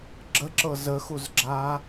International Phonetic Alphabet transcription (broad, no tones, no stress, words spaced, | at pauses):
ɡ͡ǁəǁɤ zəxuzɡ͡ǁa